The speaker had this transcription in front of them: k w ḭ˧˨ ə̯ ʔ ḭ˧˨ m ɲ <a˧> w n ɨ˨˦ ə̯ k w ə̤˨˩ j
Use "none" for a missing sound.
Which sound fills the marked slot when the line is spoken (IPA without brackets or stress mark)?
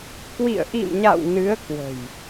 a̰˧˨